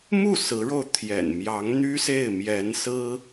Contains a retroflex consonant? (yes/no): yes